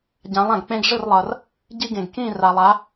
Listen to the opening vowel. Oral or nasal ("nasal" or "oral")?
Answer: nasal